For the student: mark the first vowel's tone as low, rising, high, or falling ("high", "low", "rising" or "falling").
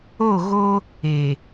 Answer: falling